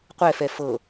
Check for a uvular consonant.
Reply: present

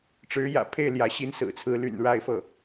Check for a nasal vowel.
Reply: absent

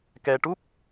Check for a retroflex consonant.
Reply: present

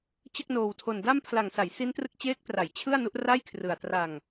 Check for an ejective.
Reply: absent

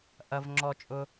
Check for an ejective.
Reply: present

